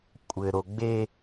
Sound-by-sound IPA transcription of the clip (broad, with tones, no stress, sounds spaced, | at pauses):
kʷʼ ɘ˨ ɾ o˨ ɡ͡b e˦